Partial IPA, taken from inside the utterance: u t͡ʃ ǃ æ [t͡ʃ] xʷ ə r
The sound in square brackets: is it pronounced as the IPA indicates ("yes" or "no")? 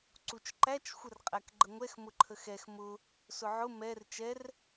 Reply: yes